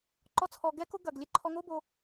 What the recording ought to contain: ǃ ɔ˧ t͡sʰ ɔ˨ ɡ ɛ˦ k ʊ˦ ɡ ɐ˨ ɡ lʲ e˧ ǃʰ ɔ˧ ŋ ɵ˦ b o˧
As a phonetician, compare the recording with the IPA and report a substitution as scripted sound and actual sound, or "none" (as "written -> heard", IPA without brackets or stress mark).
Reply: ɵ˦ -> o˦